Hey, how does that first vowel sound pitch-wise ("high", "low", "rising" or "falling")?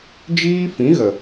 high